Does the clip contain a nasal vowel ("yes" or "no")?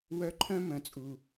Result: yes